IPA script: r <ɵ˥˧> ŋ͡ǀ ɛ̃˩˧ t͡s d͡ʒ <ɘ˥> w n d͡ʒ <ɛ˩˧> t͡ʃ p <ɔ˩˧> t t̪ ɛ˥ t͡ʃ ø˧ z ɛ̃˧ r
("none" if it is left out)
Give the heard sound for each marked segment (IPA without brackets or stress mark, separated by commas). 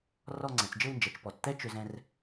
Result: ɔ˥˧, ɘ˥˧, ɛ˩˧, ɔ˩˧